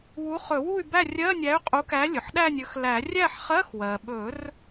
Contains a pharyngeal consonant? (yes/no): yes